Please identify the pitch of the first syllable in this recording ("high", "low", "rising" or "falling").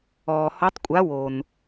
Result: low